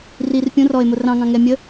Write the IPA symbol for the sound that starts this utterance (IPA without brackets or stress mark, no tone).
r